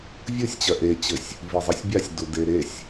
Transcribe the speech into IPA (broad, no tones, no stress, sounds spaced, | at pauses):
vʲ ɯ sʲ t͡ɕ ɜ ʔ e t͡ɕ ɘ sʲ | v i zˤ i sʲ bʲ a sʲ d u d e ɾ e sʲ